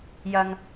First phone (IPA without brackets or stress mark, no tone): j